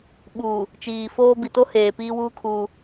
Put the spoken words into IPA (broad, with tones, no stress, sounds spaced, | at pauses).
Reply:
ɓ uː˨ | t͡ʃ iː˨ f oː˦ b i˨ t o˦ h eː˨ p iː˦ w uː˦ kʰ uː˦